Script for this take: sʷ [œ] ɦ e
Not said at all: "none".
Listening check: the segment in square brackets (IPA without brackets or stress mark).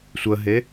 ə